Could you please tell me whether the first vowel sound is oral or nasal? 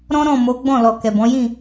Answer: nasal